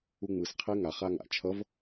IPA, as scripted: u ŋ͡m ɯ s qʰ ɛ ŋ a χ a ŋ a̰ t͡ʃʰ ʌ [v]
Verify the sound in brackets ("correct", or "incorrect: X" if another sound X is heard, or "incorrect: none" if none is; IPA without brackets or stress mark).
correct